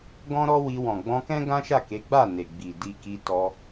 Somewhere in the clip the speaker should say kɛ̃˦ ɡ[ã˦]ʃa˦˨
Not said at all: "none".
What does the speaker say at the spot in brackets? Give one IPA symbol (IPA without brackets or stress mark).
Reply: ã˦